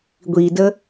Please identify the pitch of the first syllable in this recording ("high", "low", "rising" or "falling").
low